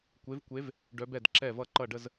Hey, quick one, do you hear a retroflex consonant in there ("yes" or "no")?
yes